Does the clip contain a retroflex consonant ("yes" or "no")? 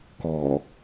no